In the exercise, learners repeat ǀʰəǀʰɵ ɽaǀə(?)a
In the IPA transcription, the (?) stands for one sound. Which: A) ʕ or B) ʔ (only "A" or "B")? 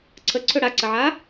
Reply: A